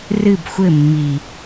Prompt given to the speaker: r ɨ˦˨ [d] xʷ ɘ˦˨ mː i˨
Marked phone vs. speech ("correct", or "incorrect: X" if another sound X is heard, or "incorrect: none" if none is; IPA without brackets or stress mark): incorrect: b